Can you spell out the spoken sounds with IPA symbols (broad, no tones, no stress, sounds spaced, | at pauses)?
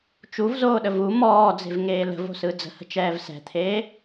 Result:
t͡ʃ u v z oː ɗ ə v u m ɔː d͡z e̤ v ŋ eː l ə̤ v o̤ s ɯ d͡z ə̤ h ə̤ t͡ʃ ɛː v s ɛ̤ t̪ʰ eː